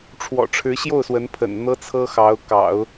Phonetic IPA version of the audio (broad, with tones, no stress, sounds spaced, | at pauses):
ʈ͡ʂʰ w ɔ̰˨˩ ʈ͡ʂʰ ɻ̩˧˥ ɕ j o˥˩ ʊ̯ s w ə˧˥ n pʰ ə̰˨˩ n n̪ ɤ˥ t͡sʰ ɤ˥ x ɑ˧˥ ʊ̯ k ɑ̰˨˩˦ ʊ̯